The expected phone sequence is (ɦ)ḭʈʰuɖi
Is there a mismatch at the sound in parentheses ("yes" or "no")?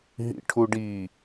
no